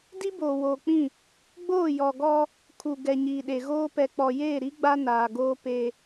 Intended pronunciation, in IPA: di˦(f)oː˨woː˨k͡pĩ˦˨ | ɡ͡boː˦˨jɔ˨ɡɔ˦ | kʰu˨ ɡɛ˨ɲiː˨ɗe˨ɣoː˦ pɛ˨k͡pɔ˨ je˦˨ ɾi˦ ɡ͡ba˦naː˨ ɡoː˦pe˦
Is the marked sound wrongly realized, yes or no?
yes